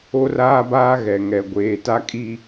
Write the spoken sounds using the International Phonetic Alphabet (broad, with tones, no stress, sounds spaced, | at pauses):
o˦ r aː˦ b aː˦ ɣ ɛ˨ ŋ ɛ˨ ɡʷ eː˨ t a˦ kʼ i˦